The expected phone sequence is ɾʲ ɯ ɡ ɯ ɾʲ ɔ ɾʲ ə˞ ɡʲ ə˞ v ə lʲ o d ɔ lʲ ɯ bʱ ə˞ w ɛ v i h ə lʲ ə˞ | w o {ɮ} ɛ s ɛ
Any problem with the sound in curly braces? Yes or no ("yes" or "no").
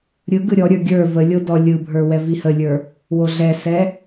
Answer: no